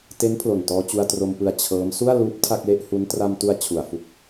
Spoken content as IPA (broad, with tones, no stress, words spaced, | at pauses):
te˦˥n pʰlo˨˩ntɔː˧t͡ɕu˧a̯ tro˧mpɯ˧a̯ t͡ɕʰɤː˦˥m su˥˩a̯luː˦˥p̚ tʰa˥˩k̚le˥˩ʔhu˦˥n tra˧mtu˧a̯ t͡ɕʰu˨˩a̯fu˦˥k̚